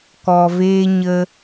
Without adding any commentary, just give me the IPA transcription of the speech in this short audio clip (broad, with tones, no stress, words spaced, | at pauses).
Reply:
kɔ˧veː˦ɲə˦